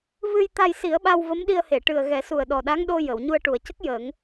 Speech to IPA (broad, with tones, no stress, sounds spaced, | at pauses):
v ɨ˧ j t̪ a˧ j s i˨˩˦ ə̯ ɓ a˧ w v ə˧˥ m ɗ i˧ ə̯ h e˨˩˨ ʈ ɨ˨˩ ə̯ ɣ ɛ˨˩˦ s u˨˩ ə̯ ɗ ɔ˨˩ ɗ a˧˥ ŋ ɗ o˧ j ə˨˩˨ w ɲ u˧ ə̯ ʈ u˨˩ ə̯ c ə˦˥ k̚ j əː˨˩˦ ŋ